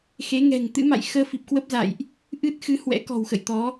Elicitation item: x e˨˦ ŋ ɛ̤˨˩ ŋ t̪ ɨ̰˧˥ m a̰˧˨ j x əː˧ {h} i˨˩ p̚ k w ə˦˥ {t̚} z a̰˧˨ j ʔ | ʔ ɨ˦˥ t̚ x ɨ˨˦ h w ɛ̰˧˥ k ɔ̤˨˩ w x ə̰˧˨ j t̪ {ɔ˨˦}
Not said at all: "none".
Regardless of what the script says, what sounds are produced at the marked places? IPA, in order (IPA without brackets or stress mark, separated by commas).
f, p̚, ɔ˨˦